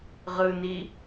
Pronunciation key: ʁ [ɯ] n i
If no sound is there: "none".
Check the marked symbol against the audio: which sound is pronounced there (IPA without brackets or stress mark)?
ɯ